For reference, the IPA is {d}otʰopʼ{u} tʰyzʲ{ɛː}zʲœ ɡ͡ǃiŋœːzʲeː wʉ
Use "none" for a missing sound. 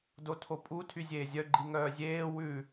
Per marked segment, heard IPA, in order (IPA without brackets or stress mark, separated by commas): d, u, eː